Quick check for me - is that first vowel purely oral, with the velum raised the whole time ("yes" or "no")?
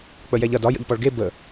yes